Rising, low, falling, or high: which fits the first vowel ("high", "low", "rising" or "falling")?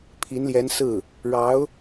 rising